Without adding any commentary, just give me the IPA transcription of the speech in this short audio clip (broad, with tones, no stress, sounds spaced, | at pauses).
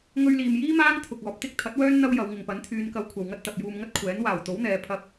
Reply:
ŋ ɵ˧ ɥ l iː˨ m j iː˥ m aː˥ ŋ t̪ʰ ʊ˨ k̚ ɔː˨ p̚ t̪ ɪ˥ k̚ t̪ʰ ɐ˨˥ t̚ w œː˥ n n̪ ɐ˥ w j ɐ˨˧ w ŋ ɪ˨ ŋ p ɐ˨˥ n t̪ʰ yː˨˧ n k ɐ˨˧ w kʷʰ ɐ˨ w ŋ ɐ˥ t̚ t̪ ɐ˨ p̚ j uː˧ m ŋ ɐ˥ t̚ kʷʰ ɛː˨˥ n w aː˨˩ w t̪ o˨˥ w n̪ ɛː˨˧ pʰ ɐ˧ p̚